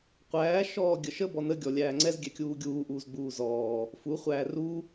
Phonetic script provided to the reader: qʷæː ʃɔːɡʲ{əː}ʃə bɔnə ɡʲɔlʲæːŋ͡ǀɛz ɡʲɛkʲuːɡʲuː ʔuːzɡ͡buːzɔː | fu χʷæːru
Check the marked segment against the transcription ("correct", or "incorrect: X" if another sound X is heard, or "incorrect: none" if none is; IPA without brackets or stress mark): incorrect: ə